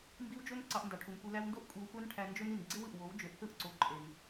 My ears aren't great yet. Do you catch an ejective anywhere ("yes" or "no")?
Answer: yes